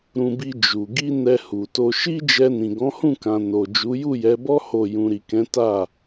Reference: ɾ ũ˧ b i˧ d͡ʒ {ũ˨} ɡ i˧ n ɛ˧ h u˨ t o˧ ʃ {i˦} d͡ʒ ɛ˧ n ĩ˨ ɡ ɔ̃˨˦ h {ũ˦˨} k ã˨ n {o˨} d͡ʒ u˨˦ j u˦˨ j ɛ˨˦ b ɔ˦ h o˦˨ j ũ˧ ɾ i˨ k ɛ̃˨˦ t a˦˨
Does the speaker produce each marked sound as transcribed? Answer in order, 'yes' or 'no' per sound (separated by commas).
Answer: no, yes, yes, yes